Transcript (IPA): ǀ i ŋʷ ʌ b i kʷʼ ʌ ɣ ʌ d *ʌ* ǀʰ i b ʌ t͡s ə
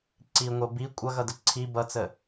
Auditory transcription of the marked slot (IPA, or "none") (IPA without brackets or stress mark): ə